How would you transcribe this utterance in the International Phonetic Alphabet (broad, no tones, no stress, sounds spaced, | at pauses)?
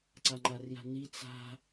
ǀ a ŋ͡ǃ a r j a̤ n i t͡s a̤